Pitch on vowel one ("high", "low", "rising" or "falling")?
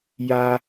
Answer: high